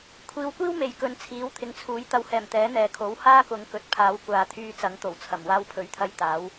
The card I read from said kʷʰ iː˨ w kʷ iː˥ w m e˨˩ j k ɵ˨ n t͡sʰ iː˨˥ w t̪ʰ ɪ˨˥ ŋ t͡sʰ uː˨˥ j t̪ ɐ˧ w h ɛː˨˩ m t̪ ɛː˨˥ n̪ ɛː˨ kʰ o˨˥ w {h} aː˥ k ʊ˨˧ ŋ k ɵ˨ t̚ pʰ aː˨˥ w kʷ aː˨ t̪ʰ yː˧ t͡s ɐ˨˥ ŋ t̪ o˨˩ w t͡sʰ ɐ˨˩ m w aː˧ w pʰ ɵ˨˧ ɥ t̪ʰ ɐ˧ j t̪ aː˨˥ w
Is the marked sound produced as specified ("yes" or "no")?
yes